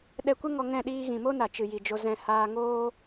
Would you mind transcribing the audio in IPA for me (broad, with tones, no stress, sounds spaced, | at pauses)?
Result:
ɗ ɛ˧ kʷ ɛ˦ ŋ ɔ˧ ŋ ɛ̃˦˨ ɗ iː˧ ɣ ĩ˨ m o˦ n a˨ t͡ʃ ɨ˨ j i˨ d͡ʒ o˧ z ɛ̃˧ h aː˧ ŋ oː˦